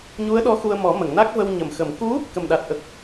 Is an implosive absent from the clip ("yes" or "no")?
no